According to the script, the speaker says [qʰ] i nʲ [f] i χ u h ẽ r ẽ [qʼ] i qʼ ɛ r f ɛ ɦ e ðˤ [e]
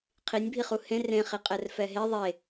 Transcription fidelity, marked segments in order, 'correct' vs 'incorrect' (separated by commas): correct, incorrect, incorrect, correct